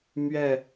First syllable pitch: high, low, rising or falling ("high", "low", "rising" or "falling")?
falling